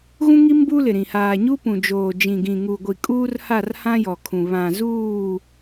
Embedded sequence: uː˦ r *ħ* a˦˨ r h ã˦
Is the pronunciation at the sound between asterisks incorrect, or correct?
incorrect